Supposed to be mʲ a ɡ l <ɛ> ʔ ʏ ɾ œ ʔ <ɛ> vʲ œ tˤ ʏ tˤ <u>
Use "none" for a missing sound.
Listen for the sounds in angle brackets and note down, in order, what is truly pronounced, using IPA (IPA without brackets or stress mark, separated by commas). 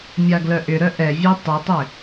œ, ɛ, ʏ